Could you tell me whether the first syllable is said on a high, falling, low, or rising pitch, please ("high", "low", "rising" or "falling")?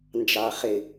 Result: low